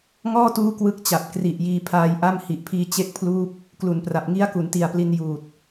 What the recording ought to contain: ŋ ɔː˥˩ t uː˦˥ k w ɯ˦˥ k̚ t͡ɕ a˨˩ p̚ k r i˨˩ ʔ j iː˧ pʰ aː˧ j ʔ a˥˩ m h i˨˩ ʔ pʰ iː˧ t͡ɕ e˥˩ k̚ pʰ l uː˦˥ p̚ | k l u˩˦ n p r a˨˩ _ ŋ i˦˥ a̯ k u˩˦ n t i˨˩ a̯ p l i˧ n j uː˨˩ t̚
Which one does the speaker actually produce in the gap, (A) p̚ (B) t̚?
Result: A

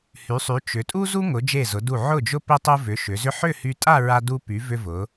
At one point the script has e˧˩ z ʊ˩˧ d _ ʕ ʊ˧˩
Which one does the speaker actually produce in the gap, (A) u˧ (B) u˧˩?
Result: B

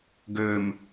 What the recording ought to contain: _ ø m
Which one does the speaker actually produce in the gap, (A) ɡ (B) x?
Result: A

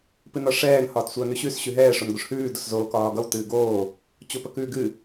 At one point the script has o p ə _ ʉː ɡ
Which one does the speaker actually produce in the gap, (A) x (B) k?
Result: B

